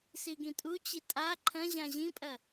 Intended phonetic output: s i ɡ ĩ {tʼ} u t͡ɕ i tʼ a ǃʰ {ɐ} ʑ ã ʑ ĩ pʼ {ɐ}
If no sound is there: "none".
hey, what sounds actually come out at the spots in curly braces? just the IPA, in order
tʼ, ɐ̃, ɐ

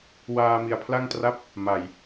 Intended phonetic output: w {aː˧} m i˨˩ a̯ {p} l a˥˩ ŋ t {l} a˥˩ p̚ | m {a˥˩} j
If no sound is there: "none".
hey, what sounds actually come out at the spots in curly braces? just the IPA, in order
aː˧, pʰ, r, a˨˩

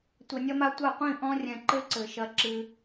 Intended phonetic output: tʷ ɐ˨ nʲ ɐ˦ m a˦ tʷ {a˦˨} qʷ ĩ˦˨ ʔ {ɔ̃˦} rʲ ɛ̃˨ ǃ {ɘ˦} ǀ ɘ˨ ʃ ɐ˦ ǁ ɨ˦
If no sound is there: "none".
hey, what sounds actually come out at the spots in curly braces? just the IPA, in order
a˦˨, ɔ̃˦, ɘ˦

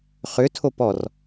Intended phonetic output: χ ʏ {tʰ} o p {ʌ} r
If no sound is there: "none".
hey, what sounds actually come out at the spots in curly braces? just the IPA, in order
tʰ, ɔ

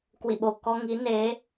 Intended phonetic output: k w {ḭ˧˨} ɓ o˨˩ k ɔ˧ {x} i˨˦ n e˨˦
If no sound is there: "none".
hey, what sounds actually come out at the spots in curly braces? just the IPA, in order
ḭ˧˨, ŋ

